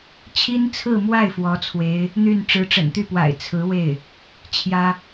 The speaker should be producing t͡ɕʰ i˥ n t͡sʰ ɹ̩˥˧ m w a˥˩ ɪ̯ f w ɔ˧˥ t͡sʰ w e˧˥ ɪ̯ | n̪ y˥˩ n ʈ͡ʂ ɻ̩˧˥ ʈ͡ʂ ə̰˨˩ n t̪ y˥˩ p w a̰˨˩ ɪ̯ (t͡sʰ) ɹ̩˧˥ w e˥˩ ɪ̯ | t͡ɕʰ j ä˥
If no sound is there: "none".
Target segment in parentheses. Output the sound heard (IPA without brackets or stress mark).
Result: t͡sʰ